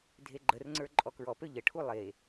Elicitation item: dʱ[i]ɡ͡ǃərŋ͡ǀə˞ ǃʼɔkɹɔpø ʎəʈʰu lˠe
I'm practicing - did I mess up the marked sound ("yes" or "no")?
yes